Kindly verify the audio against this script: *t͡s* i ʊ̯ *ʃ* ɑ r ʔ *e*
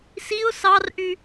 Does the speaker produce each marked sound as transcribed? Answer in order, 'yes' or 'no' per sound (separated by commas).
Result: no, no, no